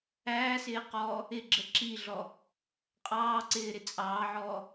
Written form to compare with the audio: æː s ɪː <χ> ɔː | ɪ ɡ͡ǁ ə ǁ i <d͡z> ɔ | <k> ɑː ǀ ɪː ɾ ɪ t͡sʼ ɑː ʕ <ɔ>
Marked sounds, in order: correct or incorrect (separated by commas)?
incorrect, incorrect, incorrect, incorrect